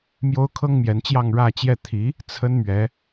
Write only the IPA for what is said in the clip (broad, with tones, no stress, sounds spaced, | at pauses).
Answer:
m j o˥ ʊ̯ kʰ ɤ˥ ŋ m j ɛ˧˥ n t͡ɕ j ɑ˥˧ ŋ ɻ ä˥˧ t͡ɕ j ɛ˥˩ t̪ʰ i˧˥ | t͡sʰ ə˥ n m ɥ ɛ˧˥